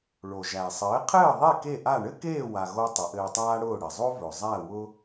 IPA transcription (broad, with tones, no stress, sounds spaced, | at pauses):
ɭ o˩ ʒ æ˩ sˤ ɘː˩˥ qʰ ɘː˥˩ ðˤ e˥˩ k e˥˩ ʔ a˥˩ ɳ ɘ˥ k eː˥˩ w a˩ ɣ o˧ tˤ ɘ˩˥ ʔ ɘː˧ tˤ aː˥ ɽ ʊː˥˩ ɽ ɘ˩ zˤ o˥ v ɵ˩ zˤ æ˥˩ w ʊ˧